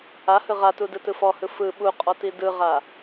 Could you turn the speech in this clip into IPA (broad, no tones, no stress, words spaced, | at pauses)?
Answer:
ahɯ ʁatudɯtɯ fɔhɯ fɯ ɓuqʼɔti dɯʁa